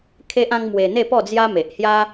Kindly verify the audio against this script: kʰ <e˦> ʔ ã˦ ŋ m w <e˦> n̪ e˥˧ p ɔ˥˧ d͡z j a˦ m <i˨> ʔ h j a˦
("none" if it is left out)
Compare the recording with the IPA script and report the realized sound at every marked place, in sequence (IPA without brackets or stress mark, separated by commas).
e˦, e˧, e˨